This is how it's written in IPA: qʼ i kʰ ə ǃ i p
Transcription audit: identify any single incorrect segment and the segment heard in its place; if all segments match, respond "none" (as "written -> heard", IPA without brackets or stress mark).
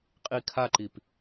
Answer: ə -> a